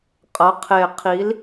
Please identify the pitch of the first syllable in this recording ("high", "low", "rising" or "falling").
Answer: rising